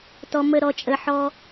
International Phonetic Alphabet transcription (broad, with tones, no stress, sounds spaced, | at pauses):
t ɔ˧ m ə˦˨ ɾ ɔ˧ t͡ʃʼ ə˧ ħ ɔ˦